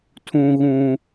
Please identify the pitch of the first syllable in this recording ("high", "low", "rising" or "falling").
high